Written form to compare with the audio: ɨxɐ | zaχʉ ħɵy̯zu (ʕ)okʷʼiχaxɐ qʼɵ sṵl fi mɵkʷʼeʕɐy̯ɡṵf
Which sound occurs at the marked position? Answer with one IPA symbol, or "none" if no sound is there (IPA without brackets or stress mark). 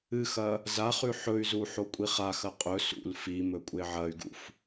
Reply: ħ